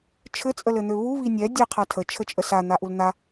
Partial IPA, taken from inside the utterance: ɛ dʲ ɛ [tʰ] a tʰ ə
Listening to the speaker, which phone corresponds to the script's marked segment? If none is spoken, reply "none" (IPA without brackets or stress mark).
qʰ